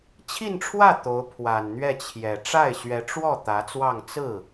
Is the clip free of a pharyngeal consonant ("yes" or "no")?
yes